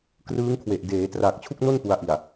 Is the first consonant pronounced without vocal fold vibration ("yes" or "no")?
yes